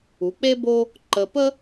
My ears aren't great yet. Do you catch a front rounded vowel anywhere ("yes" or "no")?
no